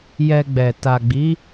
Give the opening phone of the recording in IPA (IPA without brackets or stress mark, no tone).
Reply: j